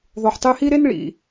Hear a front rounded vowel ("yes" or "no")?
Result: yes